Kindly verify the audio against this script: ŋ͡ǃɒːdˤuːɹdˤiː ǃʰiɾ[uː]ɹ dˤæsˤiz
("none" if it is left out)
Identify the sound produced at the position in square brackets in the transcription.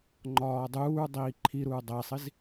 u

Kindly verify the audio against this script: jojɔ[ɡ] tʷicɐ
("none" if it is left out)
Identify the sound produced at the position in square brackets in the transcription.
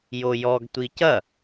ɡ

